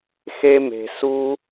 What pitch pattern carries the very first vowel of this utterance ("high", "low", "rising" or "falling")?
high